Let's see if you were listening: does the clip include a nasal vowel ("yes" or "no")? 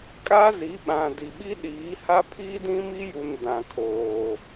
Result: yes